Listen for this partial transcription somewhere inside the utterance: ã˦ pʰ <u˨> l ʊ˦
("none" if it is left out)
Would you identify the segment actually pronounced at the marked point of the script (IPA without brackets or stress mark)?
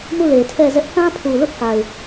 u˨